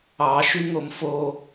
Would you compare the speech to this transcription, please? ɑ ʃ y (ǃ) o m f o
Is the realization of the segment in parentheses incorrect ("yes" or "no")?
yes